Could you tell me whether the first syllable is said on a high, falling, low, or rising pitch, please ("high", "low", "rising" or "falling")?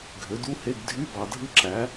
rising